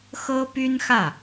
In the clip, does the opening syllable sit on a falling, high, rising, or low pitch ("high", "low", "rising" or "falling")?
high